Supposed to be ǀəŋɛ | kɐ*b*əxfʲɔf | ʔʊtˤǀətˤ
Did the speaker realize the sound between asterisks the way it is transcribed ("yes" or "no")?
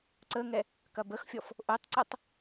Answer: yes